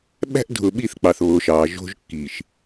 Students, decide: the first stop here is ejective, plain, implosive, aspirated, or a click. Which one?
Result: implosive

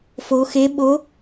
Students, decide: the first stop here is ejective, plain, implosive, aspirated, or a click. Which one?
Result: implosive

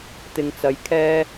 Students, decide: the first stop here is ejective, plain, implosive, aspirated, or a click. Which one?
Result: plain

